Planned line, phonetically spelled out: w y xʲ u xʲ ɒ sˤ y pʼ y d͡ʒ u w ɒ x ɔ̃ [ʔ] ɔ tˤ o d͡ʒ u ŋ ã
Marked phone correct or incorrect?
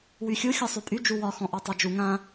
correct